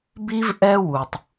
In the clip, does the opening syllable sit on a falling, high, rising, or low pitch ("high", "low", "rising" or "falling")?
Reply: high